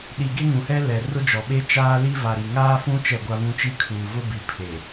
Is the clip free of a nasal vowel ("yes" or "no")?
no